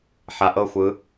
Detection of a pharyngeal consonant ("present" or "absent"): present